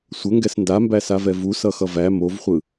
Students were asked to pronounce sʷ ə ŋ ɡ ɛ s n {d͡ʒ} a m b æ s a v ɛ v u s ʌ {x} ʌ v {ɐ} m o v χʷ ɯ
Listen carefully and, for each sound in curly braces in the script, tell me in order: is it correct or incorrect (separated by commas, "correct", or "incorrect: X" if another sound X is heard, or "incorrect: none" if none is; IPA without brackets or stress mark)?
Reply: incorrect: d, correct, incorrect: æ